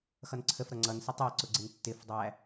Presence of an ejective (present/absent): absent